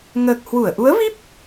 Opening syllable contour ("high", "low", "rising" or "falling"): low